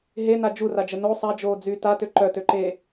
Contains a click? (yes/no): yes